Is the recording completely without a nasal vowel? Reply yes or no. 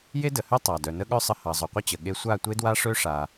yes